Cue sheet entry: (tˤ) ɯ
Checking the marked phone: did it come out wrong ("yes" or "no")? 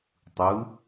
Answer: no